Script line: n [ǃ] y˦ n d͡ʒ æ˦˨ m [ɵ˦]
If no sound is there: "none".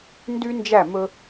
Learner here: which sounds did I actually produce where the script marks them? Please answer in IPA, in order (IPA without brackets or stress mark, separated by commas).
d, ɵ˦